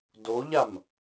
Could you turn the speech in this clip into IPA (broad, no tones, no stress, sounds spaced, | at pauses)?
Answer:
d o ʎ a m